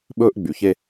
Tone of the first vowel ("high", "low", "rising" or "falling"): high